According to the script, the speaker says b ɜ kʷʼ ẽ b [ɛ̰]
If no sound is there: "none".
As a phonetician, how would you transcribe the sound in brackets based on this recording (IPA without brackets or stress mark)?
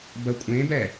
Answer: ɛ